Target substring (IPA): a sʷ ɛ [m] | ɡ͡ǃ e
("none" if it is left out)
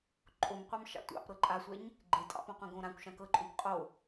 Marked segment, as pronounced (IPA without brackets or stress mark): ɲ